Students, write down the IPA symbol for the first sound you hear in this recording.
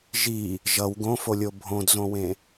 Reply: ʒ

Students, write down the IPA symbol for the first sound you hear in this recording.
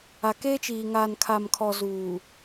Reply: a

